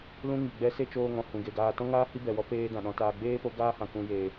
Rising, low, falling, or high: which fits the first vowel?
high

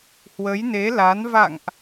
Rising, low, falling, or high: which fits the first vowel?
rising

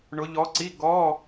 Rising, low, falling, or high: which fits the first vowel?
rising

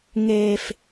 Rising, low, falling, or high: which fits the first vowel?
high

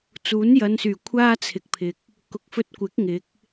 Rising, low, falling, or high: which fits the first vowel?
rising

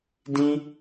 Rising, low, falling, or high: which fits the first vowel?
high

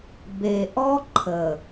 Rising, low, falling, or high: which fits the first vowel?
low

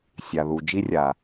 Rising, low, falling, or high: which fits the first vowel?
low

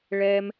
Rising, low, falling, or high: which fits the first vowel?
high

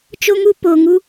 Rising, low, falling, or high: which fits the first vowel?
high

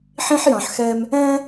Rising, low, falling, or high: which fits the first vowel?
high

